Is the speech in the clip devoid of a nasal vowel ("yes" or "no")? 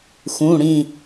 no